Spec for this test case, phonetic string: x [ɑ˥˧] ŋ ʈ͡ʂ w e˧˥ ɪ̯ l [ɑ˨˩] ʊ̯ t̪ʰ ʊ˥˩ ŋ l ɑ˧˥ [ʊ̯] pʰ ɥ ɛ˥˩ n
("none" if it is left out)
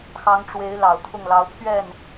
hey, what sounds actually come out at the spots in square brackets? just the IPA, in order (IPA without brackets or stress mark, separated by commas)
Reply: ɑ˧˥, ɑ˨˩, ʊ̯